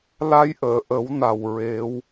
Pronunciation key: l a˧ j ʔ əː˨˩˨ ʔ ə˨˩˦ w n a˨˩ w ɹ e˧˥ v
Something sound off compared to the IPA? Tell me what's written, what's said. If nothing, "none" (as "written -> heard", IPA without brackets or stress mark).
v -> w